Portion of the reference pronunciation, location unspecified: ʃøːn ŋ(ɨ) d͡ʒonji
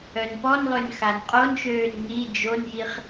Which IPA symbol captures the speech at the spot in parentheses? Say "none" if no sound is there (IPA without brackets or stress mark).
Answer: i